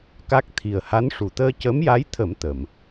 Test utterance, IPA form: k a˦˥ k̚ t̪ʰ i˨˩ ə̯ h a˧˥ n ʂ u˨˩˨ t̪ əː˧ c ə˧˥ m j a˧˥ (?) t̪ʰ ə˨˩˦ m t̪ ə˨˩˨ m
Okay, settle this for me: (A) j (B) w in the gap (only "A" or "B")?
A